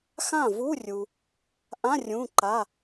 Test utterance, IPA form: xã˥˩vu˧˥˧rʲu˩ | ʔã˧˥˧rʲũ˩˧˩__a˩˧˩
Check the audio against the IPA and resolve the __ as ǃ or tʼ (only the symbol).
ǃ